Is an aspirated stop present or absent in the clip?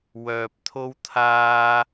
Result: present